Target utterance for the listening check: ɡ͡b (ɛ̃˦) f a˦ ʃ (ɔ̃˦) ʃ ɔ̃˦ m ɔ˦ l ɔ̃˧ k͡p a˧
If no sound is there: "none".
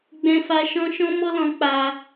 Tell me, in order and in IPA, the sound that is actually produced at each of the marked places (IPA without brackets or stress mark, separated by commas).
ɛ̃˦, ɔ̃˦